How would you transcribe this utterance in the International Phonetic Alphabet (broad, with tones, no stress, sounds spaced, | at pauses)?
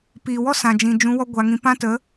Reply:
p iː˨ w ɔ˦ s ã˨ d͡ʒ ĩ˨ d͡ʒ ũ˨˦ w ɔ˦ ɡʷ a˧ ŋ ĩ˧ p ã˦ t ə˨˦